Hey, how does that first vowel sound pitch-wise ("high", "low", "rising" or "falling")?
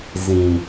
low